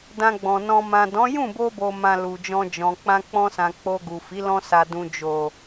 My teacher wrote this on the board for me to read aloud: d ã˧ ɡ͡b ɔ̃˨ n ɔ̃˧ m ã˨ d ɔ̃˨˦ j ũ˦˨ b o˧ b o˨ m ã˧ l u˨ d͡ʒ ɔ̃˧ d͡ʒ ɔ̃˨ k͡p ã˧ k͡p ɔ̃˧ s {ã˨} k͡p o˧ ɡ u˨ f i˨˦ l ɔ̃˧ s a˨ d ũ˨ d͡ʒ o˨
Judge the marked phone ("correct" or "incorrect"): correct